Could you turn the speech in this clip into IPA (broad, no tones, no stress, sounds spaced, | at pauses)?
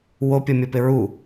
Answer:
w o pʲ ɤ mʲ ɤ p ɪ ɹ u